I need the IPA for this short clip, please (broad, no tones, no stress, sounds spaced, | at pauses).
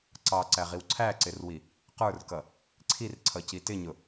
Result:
ǀ ɑ ǀ æ ʁ i w ǀʰ æ ǀ ɪ r w i | q ə˞ r k ʌ | ǀʰ i r ǀʰ ʌ c i t ɪ ɲ ʊ